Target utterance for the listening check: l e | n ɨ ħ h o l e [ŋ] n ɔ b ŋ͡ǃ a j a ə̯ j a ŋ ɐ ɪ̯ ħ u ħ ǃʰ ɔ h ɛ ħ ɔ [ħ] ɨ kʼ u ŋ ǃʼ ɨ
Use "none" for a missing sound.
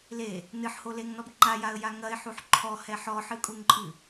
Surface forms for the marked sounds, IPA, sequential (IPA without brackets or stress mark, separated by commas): ŋ, ħ